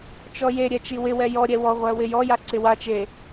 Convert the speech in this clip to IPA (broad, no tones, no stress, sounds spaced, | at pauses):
t͡ʃ ɔ j e ɾʲ ɛ t͡ʃ i w ɪ w ɛ j ɔ ɾʲ ɛ w ɔ ʁʷ ɜ w ɪ j ɔ j a ǀ ɪ w a t͡ʃ e